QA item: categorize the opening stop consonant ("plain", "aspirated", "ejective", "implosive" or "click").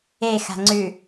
click